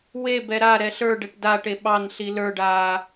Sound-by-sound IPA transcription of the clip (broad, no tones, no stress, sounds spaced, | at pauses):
w e b ɛ ɾ a ɾ ɛ ɬ ə˞ ɖ ɛ ʈ d a ʈ e ɓ ɑ n ɬ i l ə˞ ɖ aː